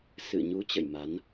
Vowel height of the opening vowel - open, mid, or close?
close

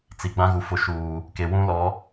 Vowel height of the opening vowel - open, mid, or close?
close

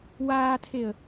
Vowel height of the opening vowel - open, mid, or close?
open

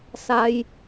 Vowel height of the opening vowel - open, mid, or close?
open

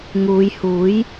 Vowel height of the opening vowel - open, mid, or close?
close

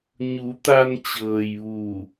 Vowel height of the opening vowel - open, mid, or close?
close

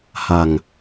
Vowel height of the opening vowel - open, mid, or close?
open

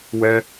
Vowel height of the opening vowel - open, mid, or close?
mid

